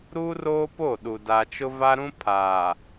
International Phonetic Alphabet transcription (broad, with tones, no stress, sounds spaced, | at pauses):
ɾ uː˦ r oː˦ p o˦˨ ɗ u˨ d a˦ t͡ʃ ʊ˦ v a˦ ɾ ũ˦ pʰ aː˨